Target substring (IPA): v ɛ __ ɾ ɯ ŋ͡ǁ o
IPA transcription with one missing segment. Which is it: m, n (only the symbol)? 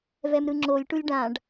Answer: m